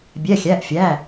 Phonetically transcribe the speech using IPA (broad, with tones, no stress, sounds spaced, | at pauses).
bʲ ɛ˩˧˩ xʲ æ˩˧˩ ʔ fʲ æ˩˧˩